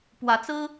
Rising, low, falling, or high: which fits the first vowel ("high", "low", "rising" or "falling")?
rising